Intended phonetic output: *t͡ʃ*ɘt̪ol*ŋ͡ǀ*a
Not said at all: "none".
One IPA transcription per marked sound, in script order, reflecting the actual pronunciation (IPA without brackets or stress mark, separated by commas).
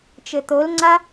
t͡ʃ, ŋ͡ǀ